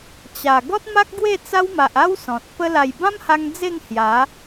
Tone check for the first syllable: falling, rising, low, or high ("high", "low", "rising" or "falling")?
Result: low